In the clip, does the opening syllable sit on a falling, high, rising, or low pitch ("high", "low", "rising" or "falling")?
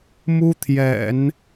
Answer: high